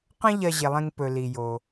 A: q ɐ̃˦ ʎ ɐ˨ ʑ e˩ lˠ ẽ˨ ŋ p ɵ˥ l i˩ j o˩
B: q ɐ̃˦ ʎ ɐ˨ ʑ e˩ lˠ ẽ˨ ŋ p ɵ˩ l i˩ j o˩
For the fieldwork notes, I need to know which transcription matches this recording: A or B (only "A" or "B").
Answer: B